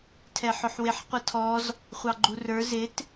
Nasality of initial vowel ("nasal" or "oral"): oral